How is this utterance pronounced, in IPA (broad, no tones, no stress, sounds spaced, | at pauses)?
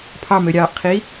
pʰ ɑ m ø ɾʲ ɑː ʔ qʰ i